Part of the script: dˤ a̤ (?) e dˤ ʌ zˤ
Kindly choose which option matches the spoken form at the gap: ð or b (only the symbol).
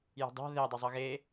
ð